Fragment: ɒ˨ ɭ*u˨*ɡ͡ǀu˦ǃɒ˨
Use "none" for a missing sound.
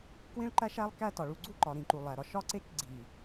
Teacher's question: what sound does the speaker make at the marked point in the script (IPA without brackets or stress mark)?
u˨